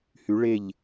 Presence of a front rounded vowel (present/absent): present